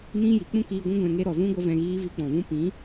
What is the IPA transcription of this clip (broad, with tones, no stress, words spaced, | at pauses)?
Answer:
nĩ˧ji˨ k͡pũ˦kiː˧ɡʷũ˦ ɡʷɛ̃˧ŋe˧ ɾɔ˨zũ˧ɡʷə˧ vɛ̃˧ɣiː˦ vi˧k͡pɔ̃˨ vũ˧pĩ˨˦